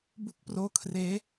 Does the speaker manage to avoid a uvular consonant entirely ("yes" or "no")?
yes